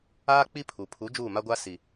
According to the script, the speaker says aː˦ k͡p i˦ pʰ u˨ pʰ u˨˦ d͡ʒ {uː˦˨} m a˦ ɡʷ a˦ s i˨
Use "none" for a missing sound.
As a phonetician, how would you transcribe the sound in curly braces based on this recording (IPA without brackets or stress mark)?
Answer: uː˦˨